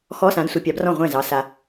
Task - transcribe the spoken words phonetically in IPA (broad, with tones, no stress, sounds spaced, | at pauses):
x ɔ˧˥˧ s ã˨˥ d sʷ i˨ pʲ ɑ˨˥ b r ɔ̃˥˩ ʁʷ ɛ̃˥˩ z ɑ˨˥ s a˨